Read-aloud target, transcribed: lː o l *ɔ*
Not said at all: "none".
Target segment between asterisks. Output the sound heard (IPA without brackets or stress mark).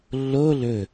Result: ɵ